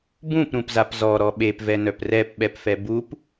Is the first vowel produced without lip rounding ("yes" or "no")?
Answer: no